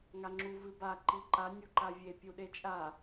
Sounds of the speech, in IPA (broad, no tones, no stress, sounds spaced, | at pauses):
ŋ a ŋ͡ǁ u v ɨ b a ǃ i ǃ a nʲ u ǃ a vʲ e pʲ u ɗ e t͡ʃʼ a